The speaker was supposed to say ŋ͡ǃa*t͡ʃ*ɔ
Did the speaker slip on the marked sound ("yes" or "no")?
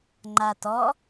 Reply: yes